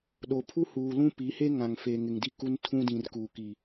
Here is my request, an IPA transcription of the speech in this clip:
ɗo˨ pʰu˦huː˨ lũ˦pi˨˦he˦ ŋã˨ŋfe˨ŋɪ˨ŋ di˦ku˦ntʰũ˦ dĩ˨r kuː˨ ki˨

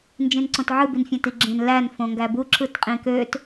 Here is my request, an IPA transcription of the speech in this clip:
nd͡ʒĩnǀõtʕɯ binfʲæ̃tiɡ͡ǁẽn læn fõŋɡæbu ǁɯtqʼĩkøt

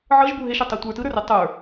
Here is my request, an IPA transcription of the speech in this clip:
ʕɤʒbu ɦeʃœtˤɛ tʷə˞ tɯɾə˞re tˤə˞

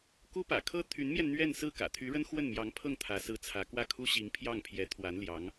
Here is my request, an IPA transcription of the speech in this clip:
ku˥pä̰˨˩ kʰɤ˥t̪ʰy˧˥nmjɛ˧n n̪ɥɛ˥˧n sɹ̩˥˩kä̰˨˩t̪ʰy˧˥ɻə˥n xwə˥˩nmjɑ˧˥ŋpʰɤ˥˩ŋ t̪ʰä˧˥sɹ̩˥t͡sʰä˧˥ kwä˥˩kʰu˥ɕi˧˥ŋ pʰjɑ˥˩ŋpʰjɛ˧˥t̪ʰwa˧˥n ljɑ˧˥ŋ

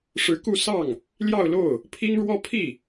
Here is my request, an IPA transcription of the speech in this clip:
ʂɻ̩˧˥ku˥˧ sɑ˥˩ŋ | ljɑ˥˧ʊ̯lo˥˩ʊ̯ | pʰi˥ŋɻwɔ˥ pʰi˥˩

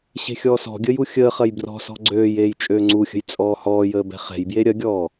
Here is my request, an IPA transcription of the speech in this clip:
ɕe̤xʲɔːsɔ̤ɡʲəːj uxʲəːχɐj brɔ̤sɔ̤ ɡ͡ǀøːjeːj t͡ʃʼøːŋ͡ǀuxʲə̤j t͡sʼɔːhɔːjəː bɛ̤χɛ̤jbje ɾʲɐɡʲɔː

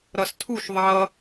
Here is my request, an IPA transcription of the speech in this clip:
ɾʌstʰuʃ ðˤʌ

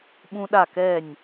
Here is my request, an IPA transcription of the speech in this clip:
ɓũ˥ɗa˥˧kɛ˥˧nʲ

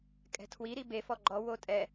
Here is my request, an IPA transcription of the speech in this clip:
kʼɛ̤tʰwi ɾibe fɔɡ͡ǃɔ wotʼɛ

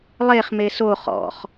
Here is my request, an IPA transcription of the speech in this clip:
lˠeχ meso χɔ̰χ

